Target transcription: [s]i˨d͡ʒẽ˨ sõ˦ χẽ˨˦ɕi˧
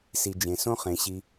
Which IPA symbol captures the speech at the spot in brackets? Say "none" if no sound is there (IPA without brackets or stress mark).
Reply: s